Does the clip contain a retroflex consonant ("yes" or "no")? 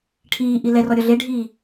yes